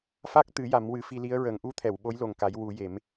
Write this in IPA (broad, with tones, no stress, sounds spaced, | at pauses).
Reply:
f a˦˥ k̚ t̪ ɨ˨˩˦ j a˨˩˦ m w ɨ˨˩˦ f i˧ l i˧˥ ə̯ ɹ ə˨˩˦ ŋ ʔ u˧˥ t̪ʰ ɛ˨˩˨ w ɓ o˧˥ j l o˨˩ ŋ k a˨˩˦ j w u˨˩˦ j e˨˩˦ m